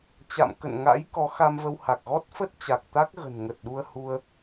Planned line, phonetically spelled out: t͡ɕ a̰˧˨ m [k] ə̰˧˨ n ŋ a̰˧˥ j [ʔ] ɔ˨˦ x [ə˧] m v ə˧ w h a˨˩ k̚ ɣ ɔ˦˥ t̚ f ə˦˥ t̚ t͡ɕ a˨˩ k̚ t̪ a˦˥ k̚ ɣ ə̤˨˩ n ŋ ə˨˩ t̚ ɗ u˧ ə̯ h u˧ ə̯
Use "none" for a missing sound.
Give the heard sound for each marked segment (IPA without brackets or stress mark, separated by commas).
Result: k, k, a˧